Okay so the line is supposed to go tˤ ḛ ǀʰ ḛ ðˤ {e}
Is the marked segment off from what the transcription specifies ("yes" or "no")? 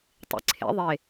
no